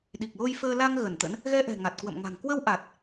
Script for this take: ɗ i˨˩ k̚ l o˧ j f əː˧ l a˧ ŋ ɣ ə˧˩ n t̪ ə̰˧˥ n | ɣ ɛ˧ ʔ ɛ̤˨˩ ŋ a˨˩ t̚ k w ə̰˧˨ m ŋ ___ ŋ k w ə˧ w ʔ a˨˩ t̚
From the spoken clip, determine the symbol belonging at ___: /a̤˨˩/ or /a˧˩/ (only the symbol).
a̤˨˩